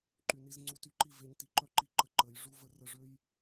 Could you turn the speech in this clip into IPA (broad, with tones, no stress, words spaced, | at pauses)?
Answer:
ǃy˨ni˧zŋ͡ǀu˧ ty˧ǃi˦˨ve˧ɲ ti˧ǃœ˦ ǃi˧ǃə˧ ǃə˨˦j ʐu˦və˦ rə˧ ʐø˦j